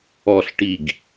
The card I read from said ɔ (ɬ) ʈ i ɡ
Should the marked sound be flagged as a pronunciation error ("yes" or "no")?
no